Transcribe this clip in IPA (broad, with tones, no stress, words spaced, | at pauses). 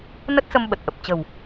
nə˦˥t̚sə˧m ɓə˨˩t̚ʔə˨˩p̚ t͡ɕə̤˨˩w